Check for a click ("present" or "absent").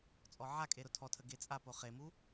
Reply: absent